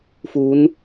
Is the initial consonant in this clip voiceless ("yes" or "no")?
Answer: yes